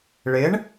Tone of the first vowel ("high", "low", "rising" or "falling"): rising